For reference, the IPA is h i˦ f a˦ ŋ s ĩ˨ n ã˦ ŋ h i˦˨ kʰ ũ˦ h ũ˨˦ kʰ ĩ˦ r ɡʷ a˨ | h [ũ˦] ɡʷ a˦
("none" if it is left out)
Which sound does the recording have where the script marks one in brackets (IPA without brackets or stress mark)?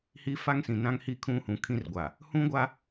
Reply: ũ˦